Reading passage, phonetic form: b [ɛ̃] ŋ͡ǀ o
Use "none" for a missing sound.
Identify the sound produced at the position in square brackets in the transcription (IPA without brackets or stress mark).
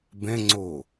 ɛ̃